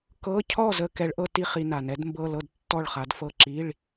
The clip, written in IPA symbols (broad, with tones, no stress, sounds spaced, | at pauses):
k ɤ˧˥˧ cʰ ɔ˥˨ z ə˧ k ɛ˨˥ ɭ ʔ ɤ˧ t i˥˨ χ i˧ n a˩ n ɛ˨˥ d m b ɤ˧˥˧ l ɤ˥˨ d tː ɔ˥˨ ɭ χ a˨˥ d f ɤ˥˨ ǁ i˧˥˧ ɭ